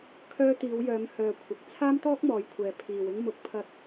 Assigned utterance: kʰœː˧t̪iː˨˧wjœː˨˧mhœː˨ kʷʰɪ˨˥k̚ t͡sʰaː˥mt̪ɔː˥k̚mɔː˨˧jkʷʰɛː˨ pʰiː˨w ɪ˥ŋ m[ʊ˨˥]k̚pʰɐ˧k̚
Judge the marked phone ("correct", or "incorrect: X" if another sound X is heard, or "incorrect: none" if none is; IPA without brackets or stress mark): correct